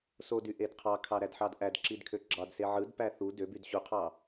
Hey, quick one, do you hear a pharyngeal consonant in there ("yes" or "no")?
yes